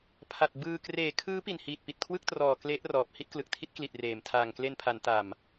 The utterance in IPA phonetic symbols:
pʰ a˨˩ t̚ b ɯː˧ k r eː˨˩ kʰ ɯː˦˥ p i˨˩ n h iː˨˩ t̚ p i˨˩ t̚ kʰ w ɯ˥˩ k̚ t r ɔː˨˩ k l e˦˥ ʔ r ɔː˨˩ p̚ h i˥˩ t̚ k l ɯ˨˩ k̚ tʰ i˦˥ t̚ k l i˨˩ t̚ r eː˨˩ m tʰ aː˨˩ ŋ k l e˧ n pʰ a˩˦ n t a˨˩ m

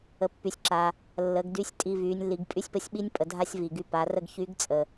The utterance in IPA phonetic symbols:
ə˩ pː y˩ sʲ ǁ a˩ | lː ə˩˧ ɡ d y˧˥ sʲ tʼ i˧ v y˩˧ nʲ lː i˩˧ ɡ pʼ y˥ sʲ p ə˧˥ sʲ ɓ i˥ nʲ pʼ ə˩˧ dʱ a˥ sʲ v i˩ ɡ y˧ p a˩˧ r ə˥ ɡ ç y˧˥ ɡ t͡sʼ ə˩

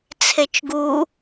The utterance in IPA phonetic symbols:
t͡sʰ e t͡ʃ ɡ u

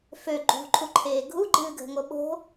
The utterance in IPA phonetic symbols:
f ø ɡ͡ǃ ṳ ǃʰ u ǃʰ eː ɡʱ u ɡ͡ǃ ɨː ɡʱ ə̤ ŋ o ɓ o̤

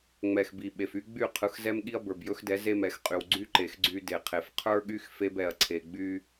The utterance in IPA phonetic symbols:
ŋ͡m ɛ˨ x b i˨ ɓ e˨ f y˦ ɡ͡b y˦˨ qʰ ɯ˨˦ x z ɛ˦ m ɠ i˦ ɐ̯ b ə˞˨ b j ɵ˦ x d ɛ˨˦ z e˦ m ɛ˨ x qʼ y˨ w ɡ͡ǀ y˦ ǃ e˨ x ɡ͡ǀ y˦ d e˨ qʰ e˨ f qʰ ə˞˦ ɠ y˦ x f e˦ b ɛ˨ ɐ̯ ǀʰ e˨ ɡ͡b y˦

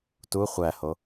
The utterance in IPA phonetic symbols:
t u χʷ æ h o

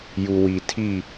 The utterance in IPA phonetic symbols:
j u˨ w i˨ tʰ i˦˨

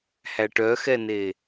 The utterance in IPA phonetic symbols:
h æ ʈ œ x ɛ n e

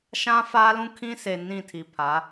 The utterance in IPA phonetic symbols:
ʃ ã˦ f aː˦ l ũ˦ kʰ ĩ˦ s e˨ n ĩ˦˨ tʰ i˨ pʰ a˨˦

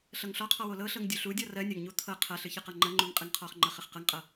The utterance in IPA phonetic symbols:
ɬ ɤ ŋ ɬ ɔ qʰ ɔ w o l ɤ ɬ ɤ ŋ dʲ u ɬ u dʲ ɔ r ɜ nʲ ɐ ŋ ɲ u t̪ʰ ɤ qʰ ɐ ɬ ɨ ç ɨ q ɤ ŋ͡ǃ ɐ ŋ͡ǃ u ŋ qʼ ɨ ŋ qʰ ɔ χ ŋ͡ǃ ɐ χ ɨ χ q ɤ ŋ qʼ ɤ

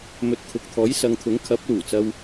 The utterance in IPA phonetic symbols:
m ɵ˨ t̚ kʰ ʊ˨ k̚ t̪ʰ ɔː˨˥ j s ɐ˨˧ ŋ t̪ʰ ʊ˨˥ ŋ kʰ ɐ˨˥ p̚ l uː˨˩ t͡s ɐ˧ w

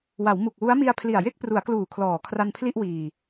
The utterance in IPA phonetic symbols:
w a˩˦ w m u˨˩ k̚ w u˦˥ a̯ m i˧ a̯ pʰ l i˨˩ a̯ j e˥˩ k̚ p r u˩˦ a̯ k l uː˨˩ kʰ l ɔː˨˩ kʰ r a˧ n pʰ l i˥˩ ʔ w iː˧

